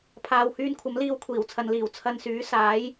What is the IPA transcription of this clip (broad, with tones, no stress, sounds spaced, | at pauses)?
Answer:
pʰ aː˧ w h yː˧ n kʷʰ ɐ˨˥ m l iː˨˧ w kʷʰ iː˨˩ w t͡sʰ ɐ˨ n l iː˨˩ w t͡sʰ ɐ˧ n s yː˨˥ s aː˨˥ j